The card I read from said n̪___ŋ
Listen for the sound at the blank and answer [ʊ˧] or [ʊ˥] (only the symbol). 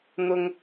ʊ˧